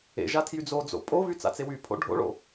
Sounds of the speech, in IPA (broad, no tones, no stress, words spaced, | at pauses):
ḛ ʒatʰjyd͡zod͡zo̰ pʼovy t͡sa̰t͡sewypʰo̰ ɖʱo̰ɭo̰